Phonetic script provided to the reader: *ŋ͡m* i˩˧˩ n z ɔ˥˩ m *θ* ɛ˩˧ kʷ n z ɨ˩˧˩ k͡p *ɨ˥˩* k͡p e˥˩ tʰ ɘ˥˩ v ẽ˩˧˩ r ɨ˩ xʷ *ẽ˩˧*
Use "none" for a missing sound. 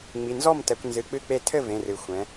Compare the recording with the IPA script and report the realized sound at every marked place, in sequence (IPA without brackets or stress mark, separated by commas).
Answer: ŋ͡m, t, ɨ˥˩, ɛ̃˩˧